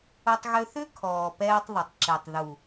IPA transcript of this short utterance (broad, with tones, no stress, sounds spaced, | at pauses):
ʊ˧ tˤ ɣ ʏ˧ θ ʏ˦ kʰ ɔː˨ p ɛː˧ tˤ ðˤ ʊ˨ tˤ ǁ e˨ tˤ ð u˨